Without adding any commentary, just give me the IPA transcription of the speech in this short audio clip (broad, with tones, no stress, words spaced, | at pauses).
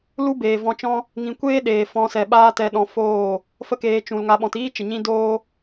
lu˦beː˨ vɔ̃˧t͡ʃɔ̃˦ | ŋĩ˨kʷeː˦ ɗeː˨fɔ̃˧sɛ˨ɓaː˦ tɛ˧ɗɔ̃˧ foː˦˨ | fə˦keː˧ t͡ʃũ˨lŋa˧ ɓɔ̃˨tiː˦t͡ʃə˨ɲĩ˧ doː˦